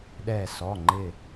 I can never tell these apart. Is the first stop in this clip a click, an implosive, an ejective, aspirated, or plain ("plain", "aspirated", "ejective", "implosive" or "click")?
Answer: implosive